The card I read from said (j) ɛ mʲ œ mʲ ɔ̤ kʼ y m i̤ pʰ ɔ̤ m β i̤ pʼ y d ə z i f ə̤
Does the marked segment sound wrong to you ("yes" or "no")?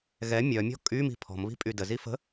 yes